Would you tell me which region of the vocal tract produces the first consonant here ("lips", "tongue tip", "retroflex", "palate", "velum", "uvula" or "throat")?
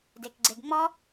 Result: tongue tip